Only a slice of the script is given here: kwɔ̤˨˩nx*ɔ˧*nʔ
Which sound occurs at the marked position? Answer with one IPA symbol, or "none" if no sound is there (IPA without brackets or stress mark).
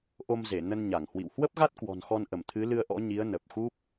ɔ˧